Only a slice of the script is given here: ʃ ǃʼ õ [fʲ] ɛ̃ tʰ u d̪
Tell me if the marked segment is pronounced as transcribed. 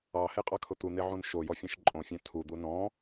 yes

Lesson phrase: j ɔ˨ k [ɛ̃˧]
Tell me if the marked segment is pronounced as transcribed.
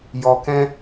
yes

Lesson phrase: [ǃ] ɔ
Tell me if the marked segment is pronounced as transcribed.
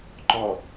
yes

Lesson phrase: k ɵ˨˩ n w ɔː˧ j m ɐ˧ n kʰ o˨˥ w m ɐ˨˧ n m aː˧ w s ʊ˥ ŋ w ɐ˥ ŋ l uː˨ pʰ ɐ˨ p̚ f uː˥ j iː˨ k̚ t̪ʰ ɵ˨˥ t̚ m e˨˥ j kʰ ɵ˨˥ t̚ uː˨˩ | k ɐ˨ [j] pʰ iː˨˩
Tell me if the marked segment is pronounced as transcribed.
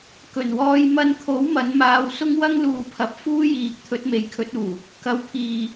no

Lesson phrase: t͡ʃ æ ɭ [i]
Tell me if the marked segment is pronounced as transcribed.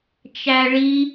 yes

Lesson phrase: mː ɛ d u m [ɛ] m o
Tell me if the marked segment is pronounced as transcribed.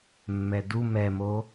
yes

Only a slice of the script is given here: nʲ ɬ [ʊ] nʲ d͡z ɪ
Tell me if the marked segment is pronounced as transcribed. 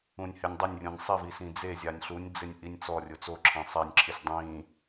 no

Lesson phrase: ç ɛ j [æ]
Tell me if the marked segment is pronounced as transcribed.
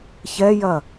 no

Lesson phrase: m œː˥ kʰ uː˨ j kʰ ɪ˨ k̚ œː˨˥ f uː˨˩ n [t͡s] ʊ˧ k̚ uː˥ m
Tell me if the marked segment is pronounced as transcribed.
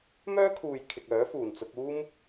yes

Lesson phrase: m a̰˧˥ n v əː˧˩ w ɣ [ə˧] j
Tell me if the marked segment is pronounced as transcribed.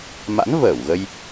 yes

